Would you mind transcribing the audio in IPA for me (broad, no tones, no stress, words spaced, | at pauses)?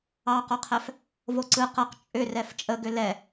ɑqoqʰɛf | voǀɯ qɤq t͡ʃʼʏ rɛft͡ʃʼəɡʏ lɛ